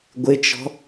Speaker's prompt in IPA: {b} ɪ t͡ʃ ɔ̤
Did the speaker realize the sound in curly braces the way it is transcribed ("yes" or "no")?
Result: no